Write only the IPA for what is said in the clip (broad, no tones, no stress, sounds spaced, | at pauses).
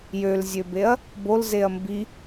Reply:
j ø l zʲ ø b e ɐ̯ | b o l z e ɐ̯ m b i